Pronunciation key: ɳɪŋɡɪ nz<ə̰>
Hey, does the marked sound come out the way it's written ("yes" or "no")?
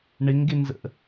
yes